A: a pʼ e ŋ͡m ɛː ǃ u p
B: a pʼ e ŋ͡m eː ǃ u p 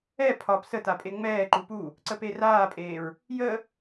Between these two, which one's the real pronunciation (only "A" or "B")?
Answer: A